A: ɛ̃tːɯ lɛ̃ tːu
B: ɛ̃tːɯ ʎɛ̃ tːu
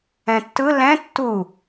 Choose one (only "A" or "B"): A